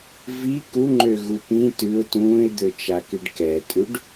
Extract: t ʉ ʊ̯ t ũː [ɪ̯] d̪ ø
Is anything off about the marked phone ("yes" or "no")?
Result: no